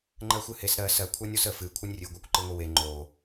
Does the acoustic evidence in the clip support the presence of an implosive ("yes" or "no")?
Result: no